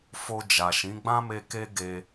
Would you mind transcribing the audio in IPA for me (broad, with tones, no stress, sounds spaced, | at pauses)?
f o˧ d͡ʒ a˨ ʃ ĩ˨˦ ɡ͡b ã˦ m e˧ k e˦ ɡ e˧